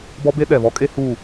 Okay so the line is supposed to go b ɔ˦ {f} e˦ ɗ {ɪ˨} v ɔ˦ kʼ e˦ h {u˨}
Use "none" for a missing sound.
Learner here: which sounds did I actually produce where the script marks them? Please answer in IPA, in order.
b, ɛ˨, u˦˨

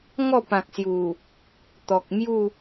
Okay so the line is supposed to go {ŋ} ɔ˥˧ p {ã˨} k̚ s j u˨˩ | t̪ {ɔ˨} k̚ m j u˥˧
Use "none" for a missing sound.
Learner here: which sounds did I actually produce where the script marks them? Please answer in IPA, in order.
ŋ, ã˨, ɔ˨

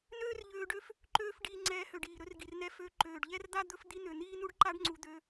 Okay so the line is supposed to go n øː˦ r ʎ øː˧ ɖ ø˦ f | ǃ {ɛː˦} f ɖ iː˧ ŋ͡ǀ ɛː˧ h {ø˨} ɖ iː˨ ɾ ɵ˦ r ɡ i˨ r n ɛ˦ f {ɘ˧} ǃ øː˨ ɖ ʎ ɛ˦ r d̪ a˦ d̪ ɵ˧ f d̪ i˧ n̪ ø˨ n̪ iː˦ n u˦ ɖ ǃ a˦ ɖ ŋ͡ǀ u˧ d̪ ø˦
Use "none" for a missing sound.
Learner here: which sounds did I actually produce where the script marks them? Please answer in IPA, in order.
øː˦, ø˨, ø˧

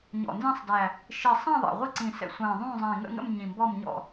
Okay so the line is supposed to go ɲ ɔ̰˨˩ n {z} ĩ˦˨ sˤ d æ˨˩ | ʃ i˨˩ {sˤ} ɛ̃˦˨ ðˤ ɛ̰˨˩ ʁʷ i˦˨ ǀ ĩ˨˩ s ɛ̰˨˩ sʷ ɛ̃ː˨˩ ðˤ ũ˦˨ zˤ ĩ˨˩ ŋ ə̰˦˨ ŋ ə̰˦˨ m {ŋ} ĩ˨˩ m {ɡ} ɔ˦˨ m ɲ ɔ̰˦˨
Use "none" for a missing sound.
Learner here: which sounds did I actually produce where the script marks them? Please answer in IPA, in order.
z, sˤ, ɲ, b

